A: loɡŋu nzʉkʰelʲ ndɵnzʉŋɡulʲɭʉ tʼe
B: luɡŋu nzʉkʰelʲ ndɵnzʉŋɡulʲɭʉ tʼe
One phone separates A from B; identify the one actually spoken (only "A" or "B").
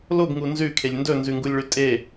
A